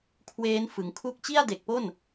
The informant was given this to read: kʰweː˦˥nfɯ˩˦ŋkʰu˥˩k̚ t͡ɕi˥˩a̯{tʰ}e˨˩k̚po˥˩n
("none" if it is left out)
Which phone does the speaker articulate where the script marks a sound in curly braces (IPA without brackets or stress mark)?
d